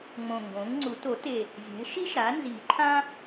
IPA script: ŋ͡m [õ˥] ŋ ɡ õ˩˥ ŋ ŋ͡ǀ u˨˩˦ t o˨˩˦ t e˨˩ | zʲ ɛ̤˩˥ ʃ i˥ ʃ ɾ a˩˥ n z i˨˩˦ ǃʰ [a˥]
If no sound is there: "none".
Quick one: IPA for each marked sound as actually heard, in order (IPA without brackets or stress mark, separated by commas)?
õ˨˩, ã˥